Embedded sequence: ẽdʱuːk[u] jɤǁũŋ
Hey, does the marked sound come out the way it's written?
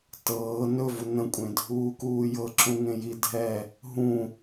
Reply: no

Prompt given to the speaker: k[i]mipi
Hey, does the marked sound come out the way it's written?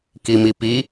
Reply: yes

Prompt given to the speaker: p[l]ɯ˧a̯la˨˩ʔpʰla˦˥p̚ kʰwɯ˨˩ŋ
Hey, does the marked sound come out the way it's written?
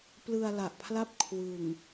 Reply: yes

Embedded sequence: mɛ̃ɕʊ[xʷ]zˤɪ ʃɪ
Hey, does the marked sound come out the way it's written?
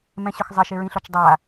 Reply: no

